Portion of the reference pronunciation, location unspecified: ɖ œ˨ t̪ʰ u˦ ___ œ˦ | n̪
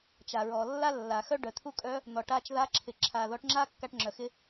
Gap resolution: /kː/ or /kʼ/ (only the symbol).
kʼ